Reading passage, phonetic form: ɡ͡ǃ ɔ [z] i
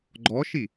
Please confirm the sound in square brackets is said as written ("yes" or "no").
no